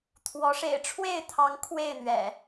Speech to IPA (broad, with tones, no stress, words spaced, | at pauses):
t̪ʰwɔ˨˦ ʂḛ˨˩ɪ̯ʈ͡ʂʰwe˥˨ɪ̯t̪ʰɑ˨˦ŋ kʰwe˥˨ɪ̯n̪ɥɛ̰˨˩